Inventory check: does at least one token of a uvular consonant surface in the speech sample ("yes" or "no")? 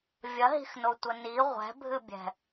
yes